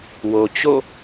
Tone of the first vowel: low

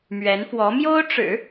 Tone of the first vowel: rising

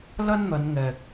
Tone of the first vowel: high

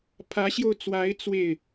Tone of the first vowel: rising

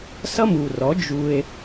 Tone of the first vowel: high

